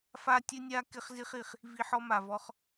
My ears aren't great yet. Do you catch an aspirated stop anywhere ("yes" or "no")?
no